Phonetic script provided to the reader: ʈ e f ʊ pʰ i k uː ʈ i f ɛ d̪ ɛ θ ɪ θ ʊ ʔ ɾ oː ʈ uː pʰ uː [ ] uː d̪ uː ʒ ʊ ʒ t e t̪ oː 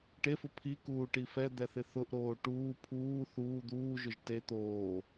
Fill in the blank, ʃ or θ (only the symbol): θ